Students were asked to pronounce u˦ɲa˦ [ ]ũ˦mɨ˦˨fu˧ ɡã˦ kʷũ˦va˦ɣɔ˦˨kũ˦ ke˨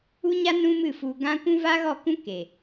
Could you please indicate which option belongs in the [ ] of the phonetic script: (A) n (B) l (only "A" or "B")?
A